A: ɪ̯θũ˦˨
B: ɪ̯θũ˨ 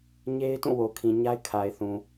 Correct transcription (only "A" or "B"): B